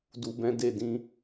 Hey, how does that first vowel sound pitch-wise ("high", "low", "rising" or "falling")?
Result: low